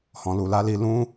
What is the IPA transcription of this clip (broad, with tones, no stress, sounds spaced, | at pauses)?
h ɔ̃˨ l u˨ l a˨˦ l i˧ l ũ˦